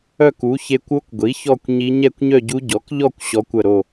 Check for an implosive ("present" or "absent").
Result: absent